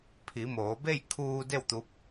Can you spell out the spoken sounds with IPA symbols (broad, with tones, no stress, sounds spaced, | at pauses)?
pʰ i˩˧ m oː˩˧ b e˥˨ j kʰ uː˧ d e˥˨ w t̪ u˧˥ p̚